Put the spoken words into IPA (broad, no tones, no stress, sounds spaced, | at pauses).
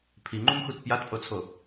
pʰ i ŋ͡ǃ u m x u t p j a t pʼ o t͡sʰ o